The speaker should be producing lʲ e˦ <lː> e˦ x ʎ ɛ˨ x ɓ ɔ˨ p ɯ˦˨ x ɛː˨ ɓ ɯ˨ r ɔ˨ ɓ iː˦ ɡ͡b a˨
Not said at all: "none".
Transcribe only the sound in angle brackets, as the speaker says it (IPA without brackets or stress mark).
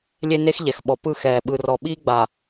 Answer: n